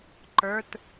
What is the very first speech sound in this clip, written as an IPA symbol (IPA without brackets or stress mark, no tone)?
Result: ǃ